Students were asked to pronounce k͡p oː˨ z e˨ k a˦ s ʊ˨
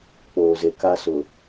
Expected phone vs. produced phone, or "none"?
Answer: none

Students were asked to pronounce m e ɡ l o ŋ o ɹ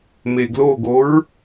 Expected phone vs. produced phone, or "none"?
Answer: ŋ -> ɡ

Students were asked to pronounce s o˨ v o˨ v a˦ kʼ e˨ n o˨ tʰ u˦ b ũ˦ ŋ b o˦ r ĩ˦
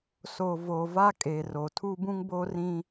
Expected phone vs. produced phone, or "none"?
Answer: n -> r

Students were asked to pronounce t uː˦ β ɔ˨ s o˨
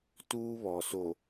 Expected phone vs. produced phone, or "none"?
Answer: none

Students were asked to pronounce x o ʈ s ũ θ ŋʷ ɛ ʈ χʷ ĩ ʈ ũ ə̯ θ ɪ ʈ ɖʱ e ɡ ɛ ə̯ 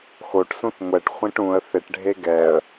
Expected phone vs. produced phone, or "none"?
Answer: none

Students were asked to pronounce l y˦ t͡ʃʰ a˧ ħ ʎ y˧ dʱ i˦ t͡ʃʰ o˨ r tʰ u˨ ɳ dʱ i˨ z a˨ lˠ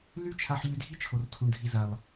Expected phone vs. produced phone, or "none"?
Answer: none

